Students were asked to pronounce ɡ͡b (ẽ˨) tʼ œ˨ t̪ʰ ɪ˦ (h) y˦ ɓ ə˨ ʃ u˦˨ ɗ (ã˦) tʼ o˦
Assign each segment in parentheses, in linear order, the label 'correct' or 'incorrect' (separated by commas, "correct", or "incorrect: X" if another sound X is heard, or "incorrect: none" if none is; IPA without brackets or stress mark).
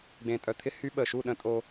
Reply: correct, correct, incorrect: ə̃˦